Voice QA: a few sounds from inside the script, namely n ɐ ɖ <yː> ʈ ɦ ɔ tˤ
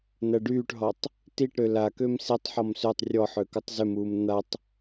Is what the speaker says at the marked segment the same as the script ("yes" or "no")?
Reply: yes